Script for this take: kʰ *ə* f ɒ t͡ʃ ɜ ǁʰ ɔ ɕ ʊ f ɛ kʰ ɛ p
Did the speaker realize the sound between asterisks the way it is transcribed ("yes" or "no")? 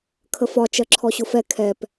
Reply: yes